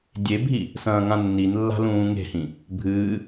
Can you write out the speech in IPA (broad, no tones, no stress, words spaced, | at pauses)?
dʲebʱi | sɐ̃ːŋãnːinlːa̤ lũːŋe̤hĩ | bʱɨː